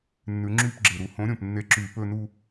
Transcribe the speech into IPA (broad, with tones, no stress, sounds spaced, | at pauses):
nː ʉ˨˦ ŋ͡ǁ yː˥˧ p ɡ͡ǁ e˨˩ ɾ u˧˩˧ h õ˨˦ ɾʲ õ˨˩ p nː e˨˦ ǁ yː˧˩˧ p ɵː˥˧ n u˥˧